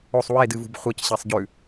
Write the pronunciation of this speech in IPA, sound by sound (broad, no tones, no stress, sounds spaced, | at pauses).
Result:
o sˤ w e d ɨ v ṳ b χʷ ɐ c ɕ e sˤ ɟ ʉ